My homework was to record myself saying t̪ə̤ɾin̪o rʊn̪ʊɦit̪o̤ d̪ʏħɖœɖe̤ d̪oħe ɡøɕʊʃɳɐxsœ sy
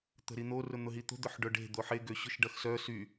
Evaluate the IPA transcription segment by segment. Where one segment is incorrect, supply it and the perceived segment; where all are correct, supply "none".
ɳ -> ɖ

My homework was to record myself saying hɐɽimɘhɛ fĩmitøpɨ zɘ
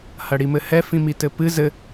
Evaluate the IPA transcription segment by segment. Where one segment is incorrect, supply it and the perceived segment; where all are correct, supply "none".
ø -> ɘ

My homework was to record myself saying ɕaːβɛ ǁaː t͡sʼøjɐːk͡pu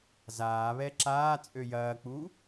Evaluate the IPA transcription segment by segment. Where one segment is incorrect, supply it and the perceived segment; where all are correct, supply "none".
ɕ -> z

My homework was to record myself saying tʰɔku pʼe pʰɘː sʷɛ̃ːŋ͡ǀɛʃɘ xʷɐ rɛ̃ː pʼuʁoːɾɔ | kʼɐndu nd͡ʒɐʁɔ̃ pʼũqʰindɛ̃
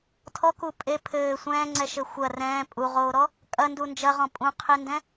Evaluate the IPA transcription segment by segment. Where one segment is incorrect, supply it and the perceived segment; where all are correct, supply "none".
none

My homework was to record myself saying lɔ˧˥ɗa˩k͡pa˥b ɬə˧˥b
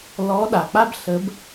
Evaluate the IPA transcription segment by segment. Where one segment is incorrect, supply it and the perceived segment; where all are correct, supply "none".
none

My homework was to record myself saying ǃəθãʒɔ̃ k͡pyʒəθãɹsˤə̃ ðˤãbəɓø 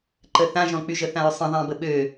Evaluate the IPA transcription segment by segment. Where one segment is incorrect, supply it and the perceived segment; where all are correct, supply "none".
none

